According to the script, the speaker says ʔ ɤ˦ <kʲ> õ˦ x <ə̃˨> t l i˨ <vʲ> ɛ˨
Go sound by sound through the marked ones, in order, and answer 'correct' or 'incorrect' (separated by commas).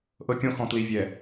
correct, incorrect, correct